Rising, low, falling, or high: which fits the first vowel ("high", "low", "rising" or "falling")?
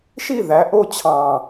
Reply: falling